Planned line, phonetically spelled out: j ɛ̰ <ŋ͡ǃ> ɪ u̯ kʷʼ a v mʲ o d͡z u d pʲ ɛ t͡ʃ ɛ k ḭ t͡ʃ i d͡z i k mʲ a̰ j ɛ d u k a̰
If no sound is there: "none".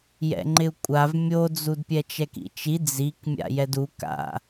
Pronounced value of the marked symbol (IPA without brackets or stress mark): ŋ͡ǃ